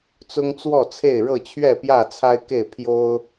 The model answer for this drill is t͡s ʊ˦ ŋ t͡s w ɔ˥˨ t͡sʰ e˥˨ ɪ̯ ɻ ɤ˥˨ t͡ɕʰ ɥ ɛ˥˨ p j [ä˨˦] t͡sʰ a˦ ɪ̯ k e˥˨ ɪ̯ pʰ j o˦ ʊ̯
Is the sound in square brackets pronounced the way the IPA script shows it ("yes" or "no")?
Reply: no